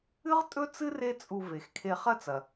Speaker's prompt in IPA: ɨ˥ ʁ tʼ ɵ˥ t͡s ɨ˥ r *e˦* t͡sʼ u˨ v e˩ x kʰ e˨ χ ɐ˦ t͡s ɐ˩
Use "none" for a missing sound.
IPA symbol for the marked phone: e˦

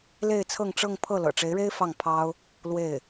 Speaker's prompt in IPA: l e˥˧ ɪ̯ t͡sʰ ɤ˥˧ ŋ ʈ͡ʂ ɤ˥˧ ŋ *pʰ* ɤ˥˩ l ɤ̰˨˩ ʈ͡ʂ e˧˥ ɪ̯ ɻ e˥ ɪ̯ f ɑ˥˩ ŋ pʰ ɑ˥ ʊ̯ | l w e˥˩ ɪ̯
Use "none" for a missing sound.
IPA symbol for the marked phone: pʰ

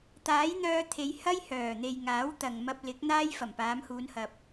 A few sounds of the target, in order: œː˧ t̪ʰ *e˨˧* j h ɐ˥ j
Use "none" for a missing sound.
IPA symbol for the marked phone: e˨˧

